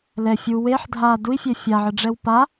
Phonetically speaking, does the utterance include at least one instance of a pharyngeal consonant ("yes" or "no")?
yes